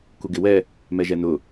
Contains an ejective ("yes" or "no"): no